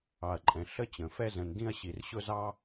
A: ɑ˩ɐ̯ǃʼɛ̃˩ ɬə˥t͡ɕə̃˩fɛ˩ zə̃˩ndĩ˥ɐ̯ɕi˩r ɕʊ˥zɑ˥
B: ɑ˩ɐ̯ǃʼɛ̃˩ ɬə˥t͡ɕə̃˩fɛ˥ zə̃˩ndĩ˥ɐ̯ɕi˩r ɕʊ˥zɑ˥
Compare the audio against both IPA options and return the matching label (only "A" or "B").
B